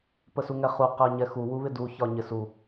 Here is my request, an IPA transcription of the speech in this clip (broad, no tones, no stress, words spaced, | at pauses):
pəsuŋɛχu qɜɲɛxu wuβɪdu çɒɲɪsu